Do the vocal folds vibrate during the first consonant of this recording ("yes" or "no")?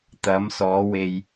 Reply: no